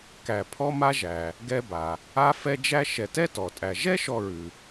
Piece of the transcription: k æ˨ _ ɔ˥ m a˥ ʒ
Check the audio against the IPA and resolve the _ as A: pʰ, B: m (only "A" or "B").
A